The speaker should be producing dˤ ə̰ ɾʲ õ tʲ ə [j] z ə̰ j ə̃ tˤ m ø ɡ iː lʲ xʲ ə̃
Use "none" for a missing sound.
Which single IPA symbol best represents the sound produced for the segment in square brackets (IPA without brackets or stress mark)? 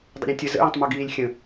none